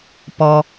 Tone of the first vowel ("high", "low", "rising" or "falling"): low